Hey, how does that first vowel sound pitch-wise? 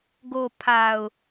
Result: low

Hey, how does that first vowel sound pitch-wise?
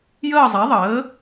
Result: falling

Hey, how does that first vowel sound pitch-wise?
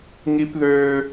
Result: high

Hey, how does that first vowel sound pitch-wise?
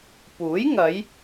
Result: rising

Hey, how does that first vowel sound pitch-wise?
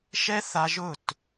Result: high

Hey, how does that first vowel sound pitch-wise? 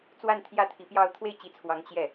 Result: falling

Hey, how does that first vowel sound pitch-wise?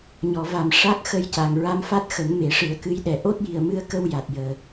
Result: low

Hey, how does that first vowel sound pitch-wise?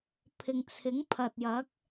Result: low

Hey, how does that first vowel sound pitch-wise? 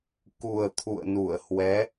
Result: low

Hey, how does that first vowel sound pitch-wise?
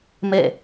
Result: falling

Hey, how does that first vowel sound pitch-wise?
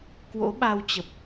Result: rising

